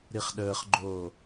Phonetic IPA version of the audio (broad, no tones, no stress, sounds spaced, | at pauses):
ɾ i χ ɗ əː χ ɡ͡ǃ oː